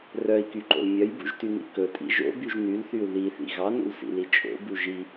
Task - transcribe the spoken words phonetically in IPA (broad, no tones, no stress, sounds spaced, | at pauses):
r œ i̯ k y ǃ o̰ l mʲ œ j b ṵ ʒ t y n ḭ k ɵ tʼ ḭ ʒ o̰ b y ʒ n y l θ y u̯ ð i θ ḭ ɣ ɑ n ṵ l s ḭ l i t͡ʃʼ o̰ b u ʒ i